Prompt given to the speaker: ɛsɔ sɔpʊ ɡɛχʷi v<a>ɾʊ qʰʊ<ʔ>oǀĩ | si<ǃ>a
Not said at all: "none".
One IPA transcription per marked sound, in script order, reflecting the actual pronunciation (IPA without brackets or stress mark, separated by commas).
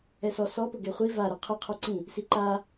a, qʰ, ǃ